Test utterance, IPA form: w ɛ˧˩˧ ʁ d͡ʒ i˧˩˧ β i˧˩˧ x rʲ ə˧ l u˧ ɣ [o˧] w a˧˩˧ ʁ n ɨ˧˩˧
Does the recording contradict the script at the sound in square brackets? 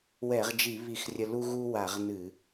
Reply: yes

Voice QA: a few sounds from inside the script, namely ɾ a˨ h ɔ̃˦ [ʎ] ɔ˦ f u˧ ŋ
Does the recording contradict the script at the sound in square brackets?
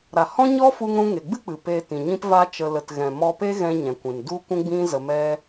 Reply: yes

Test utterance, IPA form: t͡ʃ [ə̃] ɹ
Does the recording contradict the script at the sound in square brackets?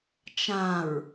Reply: yes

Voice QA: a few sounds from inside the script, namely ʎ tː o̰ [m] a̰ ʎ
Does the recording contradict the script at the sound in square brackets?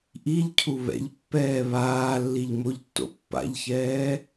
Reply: yes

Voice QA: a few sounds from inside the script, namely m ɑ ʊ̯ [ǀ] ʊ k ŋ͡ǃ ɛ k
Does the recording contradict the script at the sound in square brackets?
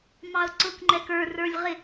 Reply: no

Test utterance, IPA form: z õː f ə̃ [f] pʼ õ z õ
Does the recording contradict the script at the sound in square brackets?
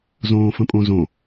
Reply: yes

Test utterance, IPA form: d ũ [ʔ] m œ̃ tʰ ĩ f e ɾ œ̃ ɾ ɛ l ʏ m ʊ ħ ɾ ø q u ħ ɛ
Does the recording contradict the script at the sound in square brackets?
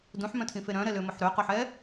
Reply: yes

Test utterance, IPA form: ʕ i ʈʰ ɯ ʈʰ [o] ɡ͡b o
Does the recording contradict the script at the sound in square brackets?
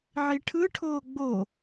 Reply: yes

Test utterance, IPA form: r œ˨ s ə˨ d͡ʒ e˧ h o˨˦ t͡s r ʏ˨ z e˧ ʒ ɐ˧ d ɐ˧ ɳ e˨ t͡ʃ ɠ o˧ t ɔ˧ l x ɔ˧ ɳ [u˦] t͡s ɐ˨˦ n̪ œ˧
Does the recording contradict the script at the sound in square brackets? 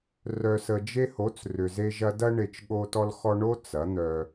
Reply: yes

